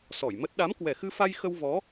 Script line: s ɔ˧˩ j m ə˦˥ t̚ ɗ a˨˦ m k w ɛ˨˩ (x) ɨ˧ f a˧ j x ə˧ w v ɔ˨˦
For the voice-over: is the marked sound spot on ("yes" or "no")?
yes